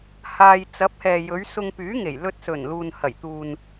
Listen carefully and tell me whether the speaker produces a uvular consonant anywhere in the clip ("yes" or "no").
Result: no